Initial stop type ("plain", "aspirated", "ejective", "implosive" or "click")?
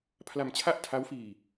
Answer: aspirated